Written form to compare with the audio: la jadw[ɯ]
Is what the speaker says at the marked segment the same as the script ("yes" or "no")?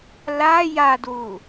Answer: no